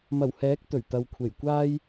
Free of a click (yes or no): yes